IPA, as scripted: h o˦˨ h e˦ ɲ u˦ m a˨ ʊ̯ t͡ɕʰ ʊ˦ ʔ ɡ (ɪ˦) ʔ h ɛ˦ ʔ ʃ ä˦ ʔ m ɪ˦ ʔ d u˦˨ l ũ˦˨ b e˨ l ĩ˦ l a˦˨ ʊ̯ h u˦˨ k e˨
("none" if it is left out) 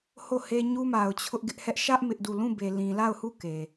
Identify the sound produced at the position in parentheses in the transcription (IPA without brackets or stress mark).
ɪ˦